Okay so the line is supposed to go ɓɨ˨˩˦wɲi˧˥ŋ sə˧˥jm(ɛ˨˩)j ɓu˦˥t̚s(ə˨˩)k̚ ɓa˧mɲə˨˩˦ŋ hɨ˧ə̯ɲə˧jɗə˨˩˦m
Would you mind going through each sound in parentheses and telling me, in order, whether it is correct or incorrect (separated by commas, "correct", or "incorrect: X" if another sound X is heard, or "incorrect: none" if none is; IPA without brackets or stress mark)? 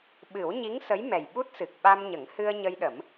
correct, incorrect: ɨ˨˩